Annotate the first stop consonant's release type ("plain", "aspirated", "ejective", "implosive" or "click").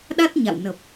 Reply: implosive